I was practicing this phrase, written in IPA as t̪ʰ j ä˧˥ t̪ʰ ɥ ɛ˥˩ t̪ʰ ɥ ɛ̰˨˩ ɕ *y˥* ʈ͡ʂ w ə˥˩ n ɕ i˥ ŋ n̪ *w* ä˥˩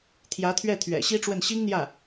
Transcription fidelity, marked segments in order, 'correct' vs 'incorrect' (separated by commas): incorrect, incorrect